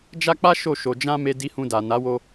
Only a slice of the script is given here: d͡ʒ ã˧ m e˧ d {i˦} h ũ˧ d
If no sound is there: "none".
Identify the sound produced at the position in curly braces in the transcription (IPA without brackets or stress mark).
i˧